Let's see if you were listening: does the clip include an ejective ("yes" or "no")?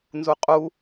yes